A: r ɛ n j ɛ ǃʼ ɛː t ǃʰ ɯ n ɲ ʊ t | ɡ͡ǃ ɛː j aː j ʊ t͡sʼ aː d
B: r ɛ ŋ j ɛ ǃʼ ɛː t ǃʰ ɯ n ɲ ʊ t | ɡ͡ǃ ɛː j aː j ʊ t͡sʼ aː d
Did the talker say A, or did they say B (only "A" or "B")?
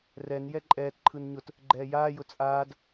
A